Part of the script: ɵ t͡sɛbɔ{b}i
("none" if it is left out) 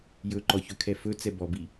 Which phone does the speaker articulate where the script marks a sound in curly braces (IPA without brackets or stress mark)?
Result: b